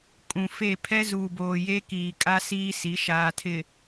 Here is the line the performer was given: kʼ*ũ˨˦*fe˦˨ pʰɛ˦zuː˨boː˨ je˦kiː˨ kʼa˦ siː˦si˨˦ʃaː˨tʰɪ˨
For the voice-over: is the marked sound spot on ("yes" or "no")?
no